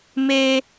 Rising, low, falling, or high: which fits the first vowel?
high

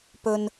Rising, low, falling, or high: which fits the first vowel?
high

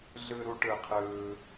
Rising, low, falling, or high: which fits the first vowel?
high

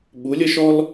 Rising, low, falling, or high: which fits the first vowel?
rising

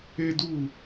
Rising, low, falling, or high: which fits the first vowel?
high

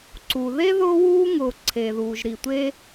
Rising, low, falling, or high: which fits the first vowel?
low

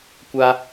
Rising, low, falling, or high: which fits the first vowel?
high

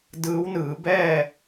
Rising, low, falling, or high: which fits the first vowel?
rising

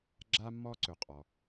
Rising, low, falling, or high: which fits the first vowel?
high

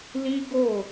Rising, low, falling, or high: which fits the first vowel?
high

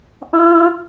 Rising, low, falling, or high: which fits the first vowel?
high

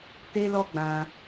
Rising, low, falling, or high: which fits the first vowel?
high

